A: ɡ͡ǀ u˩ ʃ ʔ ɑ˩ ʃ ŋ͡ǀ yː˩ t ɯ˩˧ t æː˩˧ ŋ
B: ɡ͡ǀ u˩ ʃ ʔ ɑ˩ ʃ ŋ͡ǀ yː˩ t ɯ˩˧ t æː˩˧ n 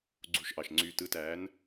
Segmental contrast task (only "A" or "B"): B